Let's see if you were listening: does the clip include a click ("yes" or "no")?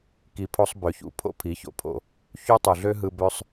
no